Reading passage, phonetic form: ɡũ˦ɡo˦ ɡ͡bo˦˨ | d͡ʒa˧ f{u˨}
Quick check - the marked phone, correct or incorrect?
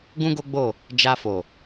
incorrect